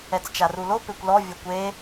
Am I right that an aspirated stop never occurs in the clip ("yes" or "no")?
yes